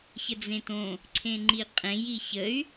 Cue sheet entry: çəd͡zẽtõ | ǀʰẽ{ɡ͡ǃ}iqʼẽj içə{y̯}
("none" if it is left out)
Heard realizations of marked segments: ŋ͡ǃ, y̯

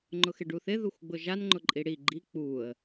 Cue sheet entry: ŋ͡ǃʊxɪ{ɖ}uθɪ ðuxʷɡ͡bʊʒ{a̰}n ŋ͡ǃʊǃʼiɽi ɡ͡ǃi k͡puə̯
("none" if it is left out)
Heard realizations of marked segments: ɖ, a

